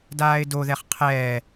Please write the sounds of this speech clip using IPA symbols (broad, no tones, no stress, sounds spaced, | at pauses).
d aː ɪ̯ d o ð ɛ χ qʰ ɛː